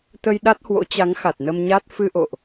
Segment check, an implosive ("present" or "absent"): present